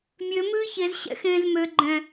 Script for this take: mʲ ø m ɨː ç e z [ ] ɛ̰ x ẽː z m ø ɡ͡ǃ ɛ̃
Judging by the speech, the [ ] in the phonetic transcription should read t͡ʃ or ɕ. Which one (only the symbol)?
ɕ